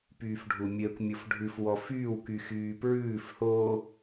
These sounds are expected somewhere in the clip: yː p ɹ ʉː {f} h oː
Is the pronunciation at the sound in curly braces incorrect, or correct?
correct